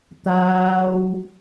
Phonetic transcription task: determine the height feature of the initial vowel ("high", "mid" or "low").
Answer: low